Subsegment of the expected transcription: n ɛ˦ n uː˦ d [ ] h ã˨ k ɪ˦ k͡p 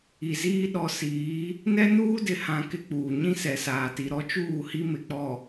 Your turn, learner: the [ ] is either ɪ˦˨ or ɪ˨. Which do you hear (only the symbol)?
ɪ˨